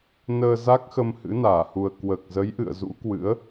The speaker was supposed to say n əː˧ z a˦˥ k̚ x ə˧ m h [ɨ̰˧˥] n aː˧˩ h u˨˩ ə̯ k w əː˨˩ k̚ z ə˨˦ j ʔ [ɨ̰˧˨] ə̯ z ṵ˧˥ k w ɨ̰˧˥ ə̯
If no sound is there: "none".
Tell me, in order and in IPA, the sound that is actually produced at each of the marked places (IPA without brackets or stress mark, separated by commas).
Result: ɨ̰˧˥, ɨ̰˧˨